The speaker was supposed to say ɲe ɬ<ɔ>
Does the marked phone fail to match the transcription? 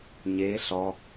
no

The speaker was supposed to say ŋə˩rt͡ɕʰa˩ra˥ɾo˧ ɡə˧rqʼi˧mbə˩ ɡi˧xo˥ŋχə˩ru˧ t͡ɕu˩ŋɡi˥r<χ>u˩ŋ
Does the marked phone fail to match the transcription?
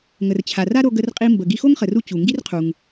yes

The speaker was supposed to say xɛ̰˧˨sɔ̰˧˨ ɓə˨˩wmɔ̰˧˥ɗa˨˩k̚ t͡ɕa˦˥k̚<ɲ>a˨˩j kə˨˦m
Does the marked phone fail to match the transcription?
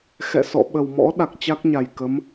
no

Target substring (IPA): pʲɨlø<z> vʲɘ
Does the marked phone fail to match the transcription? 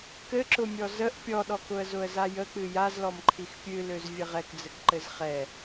no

